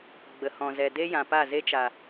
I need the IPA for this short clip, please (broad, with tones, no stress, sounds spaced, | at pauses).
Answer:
ɡ͡b ə˨ h ɔ̃˨ z ɛ˨ d e˦ j ã˨ p a˦˨ z e˦ t͡ʃ a˨